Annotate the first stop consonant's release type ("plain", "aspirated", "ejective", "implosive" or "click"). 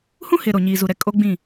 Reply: ejective